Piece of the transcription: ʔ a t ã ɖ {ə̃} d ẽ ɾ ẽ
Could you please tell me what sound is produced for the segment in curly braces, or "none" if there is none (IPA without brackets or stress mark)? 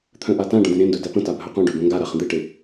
ə̃